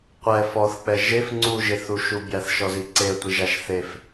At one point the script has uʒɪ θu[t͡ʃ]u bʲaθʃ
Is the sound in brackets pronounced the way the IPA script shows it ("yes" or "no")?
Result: no